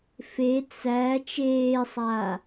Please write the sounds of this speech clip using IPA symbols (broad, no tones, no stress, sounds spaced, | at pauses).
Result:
f e t͡s æ t͡ʃ eː sˤ aː